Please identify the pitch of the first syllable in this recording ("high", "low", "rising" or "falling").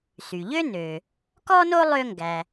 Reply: low